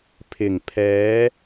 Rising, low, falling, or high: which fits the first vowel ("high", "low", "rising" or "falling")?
low